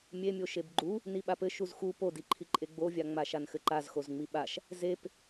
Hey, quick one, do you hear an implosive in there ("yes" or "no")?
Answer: yes